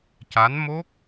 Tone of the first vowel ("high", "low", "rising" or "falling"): rising